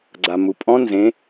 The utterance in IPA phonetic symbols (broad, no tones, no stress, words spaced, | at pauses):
ɡ͡ǀamupʼɔ̃ nzẽ